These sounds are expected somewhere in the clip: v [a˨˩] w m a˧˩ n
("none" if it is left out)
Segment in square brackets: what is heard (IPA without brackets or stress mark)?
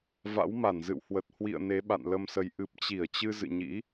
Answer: a̰˧˥